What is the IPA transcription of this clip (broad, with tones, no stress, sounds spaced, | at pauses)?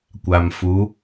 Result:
kʷ a˨ m f u˨˦